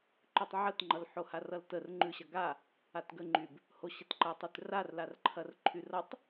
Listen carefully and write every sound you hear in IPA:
ǃ ʉ tˤ ʕ ə t ŋ͡ǃ ʌ l ħ o h a r ʌ l t ə r ŋ͡ǃ ʉ ɕ ɐ ɡ a | a t ɡ ə ŋ͡ǃ y b | h o ɕ ə t ǃ ɐ tˤ y t r a r l a r ǃʰ ɐ r ǃʰ y r ʌ tˤ

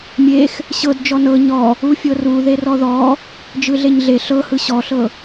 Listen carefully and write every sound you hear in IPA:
mʲ e x | ɕ ɤ d d͡ʒ ɔ n ɤ ɲ ɔ | u fʲ ɤ r u ð e r ɔ ð ɔ | d͡ʒ ɯ ɮ e ɲ ɮ e ɬ ɤ h ɯ ɕ ɔ ɬ ɤ

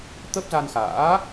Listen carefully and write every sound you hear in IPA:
t̪ ə˦˥ p̚ z a˧ n x a̰ː˧˥

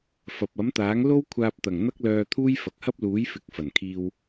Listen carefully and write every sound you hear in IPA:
f ɐ˨ p̚ ɐ˨˥ m t̪ aː˨˥ ŋ l o˥ w kʷʰ aː˧ p̚ t̪ ɐ˨˩ ŋ n̪ ɐ˥ k̚ l œː˧ t̪ʰ uː˥ j f ɐ˨ k̚ h ɐ˥ p̚ l uː˨˥ j f ɪ˨˥ k̚ f ɐ˨˩ n kʰ iː˧ w

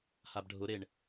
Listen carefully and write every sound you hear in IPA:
h a b ɖʱ ʊ ɾ e ɳ

